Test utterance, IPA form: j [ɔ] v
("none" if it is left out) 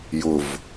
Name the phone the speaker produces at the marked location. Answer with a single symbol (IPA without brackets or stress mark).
ʊ